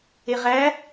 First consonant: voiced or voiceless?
voiced